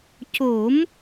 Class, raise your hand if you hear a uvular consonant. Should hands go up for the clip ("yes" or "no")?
no